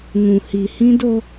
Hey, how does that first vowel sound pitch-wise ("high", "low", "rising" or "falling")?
low